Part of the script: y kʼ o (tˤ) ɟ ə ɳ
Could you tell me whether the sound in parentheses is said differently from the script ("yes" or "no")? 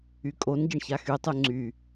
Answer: yes